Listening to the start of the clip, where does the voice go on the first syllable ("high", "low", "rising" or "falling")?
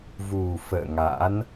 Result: low